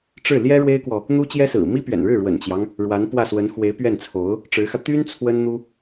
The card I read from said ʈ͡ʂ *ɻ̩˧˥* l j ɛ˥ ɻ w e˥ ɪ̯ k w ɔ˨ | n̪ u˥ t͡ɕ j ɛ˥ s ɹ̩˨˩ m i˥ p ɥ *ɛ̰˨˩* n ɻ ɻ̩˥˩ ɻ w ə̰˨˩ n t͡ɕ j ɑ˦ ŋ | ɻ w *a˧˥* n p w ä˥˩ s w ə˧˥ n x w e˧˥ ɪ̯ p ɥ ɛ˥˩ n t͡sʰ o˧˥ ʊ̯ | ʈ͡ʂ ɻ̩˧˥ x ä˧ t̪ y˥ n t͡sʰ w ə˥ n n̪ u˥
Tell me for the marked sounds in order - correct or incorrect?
incorrect, correct, correct

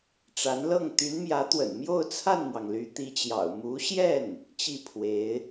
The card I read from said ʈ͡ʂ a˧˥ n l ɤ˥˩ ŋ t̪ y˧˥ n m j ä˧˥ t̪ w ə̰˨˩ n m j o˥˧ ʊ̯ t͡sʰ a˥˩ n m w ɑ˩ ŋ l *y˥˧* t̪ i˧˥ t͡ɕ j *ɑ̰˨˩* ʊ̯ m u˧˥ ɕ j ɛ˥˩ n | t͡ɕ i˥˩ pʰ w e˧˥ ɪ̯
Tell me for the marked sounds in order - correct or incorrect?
incorrect, correct

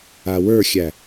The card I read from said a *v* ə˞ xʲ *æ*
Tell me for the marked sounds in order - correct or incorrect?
incorrect, correct

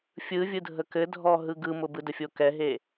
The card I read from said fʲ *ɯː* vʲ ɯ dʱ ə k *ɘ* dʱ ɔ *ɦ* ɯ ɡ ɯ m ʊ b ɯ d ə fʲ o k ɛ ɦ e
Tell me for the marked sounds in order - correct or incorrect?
incorrect, correct, correct

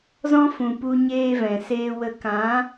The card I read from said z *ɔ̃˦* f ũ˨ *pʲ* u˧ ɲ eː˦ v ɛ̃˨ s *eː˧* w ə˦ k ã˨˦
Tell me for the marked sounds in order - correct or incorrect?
correct, incorrect, incorrect

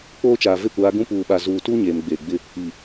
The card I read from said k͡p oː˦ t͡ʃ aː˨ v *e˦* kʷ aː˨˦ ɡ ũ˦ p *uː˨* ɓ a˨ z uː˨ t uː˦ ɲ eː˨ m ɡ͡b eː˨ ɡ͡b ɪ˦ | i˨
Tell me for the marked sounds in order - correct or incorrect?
correct, correct

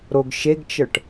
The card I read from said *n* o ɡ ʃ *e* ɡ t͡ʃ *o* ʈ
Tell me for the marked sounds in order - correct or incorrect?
incorrect, correct, incorrect

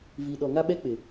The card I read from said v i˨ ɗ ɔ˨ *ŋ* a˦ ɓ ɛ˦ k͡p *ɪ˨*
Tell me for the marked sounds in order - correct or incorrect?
correct, correct

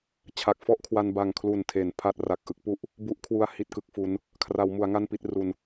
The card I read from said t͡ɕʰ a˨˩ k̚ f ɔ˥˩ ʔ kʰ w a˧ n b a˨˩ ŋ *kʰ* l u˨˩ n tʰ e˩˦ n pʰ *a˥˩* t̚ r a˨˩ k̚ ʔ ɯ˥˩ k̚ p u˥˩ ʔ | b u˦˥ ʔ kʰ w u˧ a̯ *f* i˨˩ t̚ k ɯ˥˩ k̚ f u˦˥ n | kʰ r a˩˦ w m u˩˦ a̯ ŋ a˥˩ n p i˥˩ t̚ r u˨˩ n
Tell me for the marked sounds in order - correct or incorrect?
correct, correct, incorrect

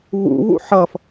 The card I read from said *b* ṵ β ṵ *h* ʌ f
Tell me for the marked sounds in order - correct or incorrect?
incorrect, incorrect

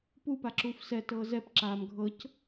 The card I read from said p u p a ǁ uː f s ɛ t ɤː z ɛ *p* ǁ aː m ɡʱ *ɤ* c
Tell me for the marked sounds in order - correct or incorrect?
correct, correct

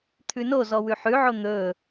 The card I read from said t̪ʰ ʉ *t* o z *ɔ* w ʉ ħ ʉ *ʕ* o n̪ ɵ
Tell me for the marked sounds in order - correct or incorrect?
incorrect, correct, correct

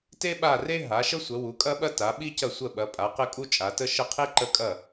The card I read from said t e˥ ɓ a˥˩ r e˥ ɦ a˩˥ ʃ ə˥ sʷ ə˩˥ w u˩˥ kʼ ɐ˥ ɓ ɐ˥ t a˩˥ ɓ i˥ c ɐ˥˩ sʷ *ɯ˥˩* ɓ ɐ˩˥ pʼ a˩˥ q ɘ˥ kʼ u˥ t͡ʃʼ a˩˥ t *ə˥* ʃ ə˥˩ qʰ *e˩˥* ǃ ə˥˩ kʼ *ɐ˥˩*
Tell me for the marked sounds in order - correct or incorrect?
incorrect, correct, incorrect, correct

